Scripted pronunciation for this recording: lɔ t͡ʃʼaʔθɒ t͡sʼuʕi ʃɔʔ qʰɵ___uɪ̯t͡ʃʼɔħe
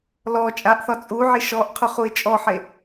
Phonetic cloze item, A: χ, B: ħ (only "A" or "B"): A